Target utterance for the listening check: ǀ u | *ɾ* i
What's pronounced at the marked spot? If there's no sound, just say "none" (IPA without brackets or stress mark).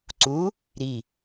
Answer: ɾ